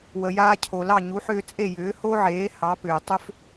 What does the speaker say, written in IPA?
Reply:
wə˩jaː˧cʰo˩lɑ˥˩ ɲu˩˥ħʏː˧t͡sʼe˥˩ jʏː˩˥ho˥ʕeː˩˥ hɑ˩˥pʏː˩ tˤʏ˥f

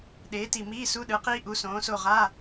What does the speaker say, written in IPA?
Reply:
ɗeː˨˥ti˧˩ miː˧˥˧su˧˥˧ ɗɯ˨˥qiː˥ʔu˨˥ sõː˨˥so˥˧ ʁa˧˥˧

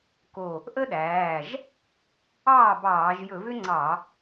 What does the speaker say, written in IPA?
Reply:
ko˧˩ | ʔə˥ɗæː˩˧˩ʒ | ɑː˥˩bɑː˧˩˧ʒ jɵ˧˩˧vʏ˥ŋ͡ǀɑ˧˩˧

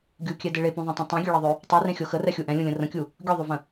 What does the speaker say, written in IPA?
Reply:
ɡʲukʲɛdɪ ɭepũðˤẽtˤõ tˤẽɡʲøɭɤðˤø | tˤurẽxʲo xərɛxʲu ʔɛ̃lʲũlʲə̃ rə̃kʲu | ɡʲoðˤovə̃

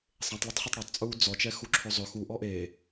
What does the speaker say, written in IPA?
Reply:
sˤẽtˤletˤχetˤ ɽotˤt͡sʼuː d͡zɔ t͡ʃɛxuǁʰɵzˤɵ xu ʔɔʔeː

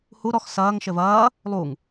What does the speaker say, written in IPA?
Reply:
hu ɾɔx sɐːŋ ʃɘvɐː | lˠuŋ

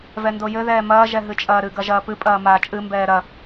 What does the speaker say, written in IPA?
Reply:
vɛndojɘ ðɛːmɐː ʒɛɦɨt͡ʃʼɐːɾɨ ɡɐʒɐːpɨ pʼɐːmaːt͡ʃʼɨ mbɛːɾɐ

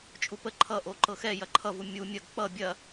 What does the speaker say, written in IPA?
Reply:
t͡ʃʼupə ǃʰʌ ʔoǃɤxɛ jɐǃʰʌvu mʲu mʲɐɡ k͡pʌ bʲɐ

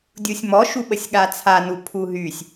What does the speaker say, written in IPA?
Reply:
dʲusʲmɔ ʃuɓəsʲɠat͡sʰa nupʰuɦysʲ

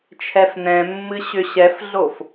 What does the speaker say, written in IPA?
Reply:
t͡ʃʰɛfnɛ̃mːɨ ɕʏɕɛfɮof

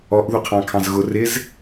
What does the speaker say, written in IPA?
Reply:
ɔʔ ðuqʰɑ̃kʰɑ̃zɣʊ rɪz

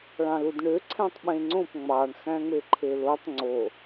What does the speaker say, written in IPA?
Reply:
ɭɑ̃ludɳøǀʰæ̃tˤ ɓẽŋ͡ǀõp ŋ͡mɑɳ xæ̃ŋ͡meǃʰelotˤ ŋ͡ǀo

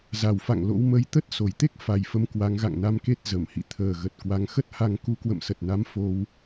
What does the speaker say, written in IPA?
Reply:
za˨˩wfa̰˧˨ŋ lo̰˧˥wmə˧j t̪ə˦˥t̚so˧˩jt̪e˦˥k̚ fa˨˩jfə˨˦m kwa˨˦ŋɣa̰˧˨ŋna˧mke˦˥t̚ zə˧˩mhḭ˧˨ t̪ʰəː˨˩ɣə˨˩t̚ kwa˨˦ŋxə˦˥t̚ha˧ŋ ku˨˦kwə̰˧˨msə˨˩t̚na˨˦m fo˧w

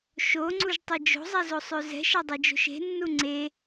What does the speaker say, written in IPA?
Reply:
ʃoŋ͡ǀuʒtˤe d͡ʒo̤zˤɛzosˤø zɛ̤ʃadˤɛd͡ʒo̤ʃ e̤nːu ŋ͡ǀe

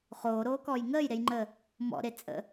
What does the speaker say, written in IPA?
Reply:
χoːɾoːkɔːj ŋəːjɾejŋ͡ǃəː | mɔ̰ɾe t͡sʼə̰

